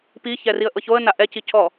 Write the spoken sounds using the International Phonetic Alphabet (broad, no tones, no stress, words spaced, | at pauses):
piçɛriə̯ʔɤ çoə̯na ʔɛcicʰɔ